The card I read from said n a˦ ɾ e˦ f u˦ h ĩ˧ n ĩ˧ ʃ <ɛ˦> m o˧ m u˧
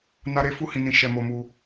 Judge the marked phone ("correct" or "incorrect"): incorrect